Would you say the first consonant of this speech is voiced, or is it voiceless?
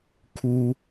voiceless